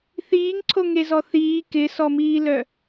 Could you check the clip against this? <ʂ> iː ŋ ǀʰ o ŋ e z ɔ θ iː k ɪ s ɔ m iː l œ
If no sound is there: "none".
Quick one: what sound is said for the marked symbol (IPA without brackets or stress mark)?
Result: θ